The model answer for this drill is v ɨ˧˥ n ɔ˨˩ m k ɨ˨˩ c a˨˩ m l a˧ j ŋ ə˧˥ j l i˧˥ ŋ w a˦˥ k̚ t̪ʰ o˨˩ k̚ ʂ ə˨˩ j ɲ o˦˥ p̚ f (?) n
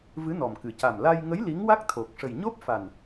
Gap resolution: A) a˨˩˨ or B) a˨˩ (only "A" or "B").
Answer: B